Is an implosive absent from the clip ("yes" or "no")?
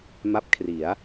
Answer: yes